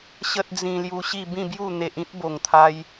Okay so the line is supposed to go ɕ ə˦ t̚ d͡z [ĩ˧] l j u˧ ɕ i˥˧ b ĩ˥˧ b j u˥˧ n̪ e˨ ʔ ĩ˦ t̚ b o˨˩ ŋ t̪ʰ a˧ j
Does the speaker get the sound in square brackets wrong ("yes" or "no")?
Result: no